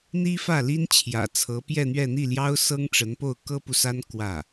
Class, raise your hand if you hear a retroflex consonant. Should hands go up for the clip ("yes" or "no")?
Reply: yes